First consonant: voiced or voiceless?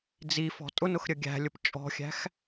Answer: voiced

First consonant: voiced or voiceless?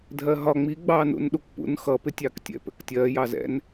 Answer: voiced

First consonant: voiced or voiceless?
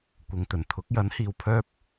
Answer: voiceless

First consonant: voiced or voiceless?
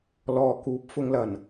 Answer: voiced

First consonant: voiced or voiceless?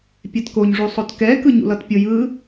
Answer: voiceless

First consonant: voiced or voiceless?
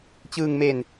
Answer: voiceless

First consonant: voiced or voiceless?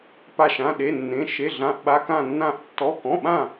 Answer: voiceless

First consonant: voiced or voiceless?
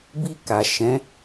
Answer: voiced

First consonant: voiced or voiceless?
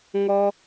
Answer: voiced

